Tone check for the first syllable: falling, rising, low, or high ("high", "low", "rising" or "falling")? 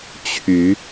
rising